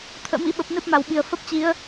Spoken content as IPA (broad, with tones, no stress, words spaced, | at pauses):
t̪ʰə̰ː˧˨mḭ˧˥ɓə˨˩p̚ nɨ˦˥p̚ma˨˩wɓi˨˩ə̯ fə˦˥p̚t͡ɕi˨˦ə̯